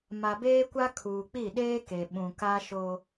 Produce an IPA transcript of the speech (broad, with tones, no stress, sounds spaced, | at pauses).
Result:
m a˨ b eː˦ kʷ a˦ kʰ uː˨ k͡p i˦˨ ɗ eː˦ k e˨ ɓ ũ˨ k a˦ ʃ o˦